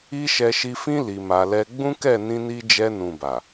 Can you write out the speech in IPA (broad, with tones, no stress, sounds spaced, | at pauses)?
i˦ ʃ ɛ˧ ʃ i˧ f ĩ˦ l i˧ m a˧ l ɛ˦ ɡ͡b ũ˦ k ɛ˦˨ n ĩ˧ n i˧ d͡ʒ ɛ˧ n ũ˨ b a˨